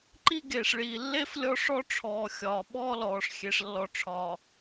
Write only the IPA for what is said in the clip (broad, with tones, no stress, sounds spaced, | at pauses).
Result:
ǃ i˦ ɡ eː˨ ʂ ɭ iː˨ lː e˦ f lʲ ɔ˦ ʂ ɔ˦ ʈ͡ʂʰ ɔː˨ xʲ ɒː˨ ɓ ɔː˦ l ɔː˨ ʂ xʲ e˨ ʂ lː ɔ˨ ʈ͡ʂʰ ɒː˨